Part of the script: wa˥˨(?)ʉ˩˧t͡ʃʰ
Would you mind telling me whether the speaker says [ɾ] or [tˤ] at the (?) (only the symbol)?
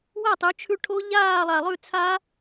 tˤ